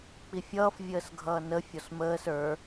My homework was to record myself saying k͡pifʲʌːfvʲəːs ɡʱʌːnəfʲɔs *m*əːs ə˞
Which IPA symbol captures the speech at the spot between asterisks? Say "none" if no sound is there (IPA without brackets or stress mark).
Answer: m